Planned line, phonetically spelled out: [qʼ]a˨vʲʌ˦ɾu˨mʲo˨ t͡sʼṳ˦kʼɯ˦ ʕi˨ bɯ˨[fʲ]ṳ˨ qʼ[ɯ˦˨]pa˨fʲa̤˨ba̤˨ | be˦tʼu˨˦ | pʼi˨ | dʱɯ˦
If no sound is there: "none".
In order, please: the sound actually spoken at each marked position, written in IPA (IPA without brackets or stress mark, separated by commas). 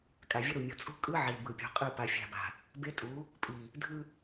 kʼ, pʲ, ɯ˦˨